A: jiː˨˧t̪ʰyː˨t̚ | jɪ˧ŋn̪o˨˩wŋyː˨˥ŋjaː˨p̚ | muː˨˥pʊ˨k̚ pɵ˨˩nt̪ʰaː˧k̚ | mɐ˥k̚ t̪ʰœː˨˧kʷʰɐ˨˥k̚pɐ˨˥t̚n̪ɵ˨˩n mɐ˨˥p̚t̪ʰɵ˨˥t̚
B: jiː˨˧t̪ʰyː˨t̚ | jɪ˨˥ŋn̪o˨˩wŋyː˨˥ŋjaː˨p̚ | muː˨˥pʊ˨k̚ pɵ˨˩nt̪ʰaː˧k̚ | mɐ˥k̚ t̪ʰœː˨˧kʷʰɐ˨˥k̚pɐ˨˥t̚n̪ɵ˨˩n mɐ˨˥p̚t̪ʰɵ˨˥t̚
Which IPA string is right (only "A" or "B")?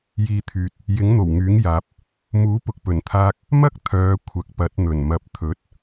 B